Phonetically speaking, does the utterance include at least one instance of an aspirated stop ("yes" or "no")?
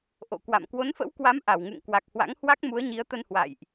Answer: no